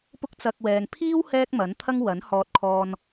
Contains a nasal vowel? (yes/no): no